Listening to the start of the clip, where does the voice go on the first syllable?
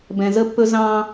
low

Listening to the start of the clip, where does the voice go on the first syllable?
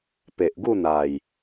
low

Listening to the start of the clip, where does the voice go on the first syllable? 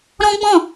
high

